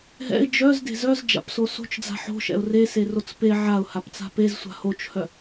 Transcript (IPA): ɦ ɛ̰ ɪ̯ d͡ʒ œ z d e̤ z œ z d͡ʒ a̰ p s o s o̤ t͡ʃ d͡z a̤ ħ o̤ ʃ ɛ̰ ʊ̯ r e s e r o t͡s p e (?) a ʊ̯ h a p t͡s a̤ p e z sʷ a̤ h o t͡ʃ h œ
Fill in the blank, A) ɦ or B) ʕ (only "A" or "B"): B